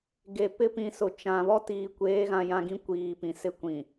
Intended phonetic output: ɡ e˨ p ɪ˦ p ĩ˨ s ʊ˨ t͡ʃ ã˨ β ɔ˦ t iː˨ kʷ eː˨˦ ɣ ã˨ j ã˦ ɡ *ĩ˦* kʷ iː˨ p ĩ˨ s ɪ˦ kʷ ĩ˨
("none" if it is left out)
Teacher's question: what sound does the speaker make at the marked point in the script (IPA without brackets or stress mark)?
ĩ˦